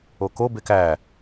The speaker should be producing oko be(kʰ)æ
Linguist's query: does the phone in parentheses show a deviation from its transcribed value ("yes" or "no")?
yes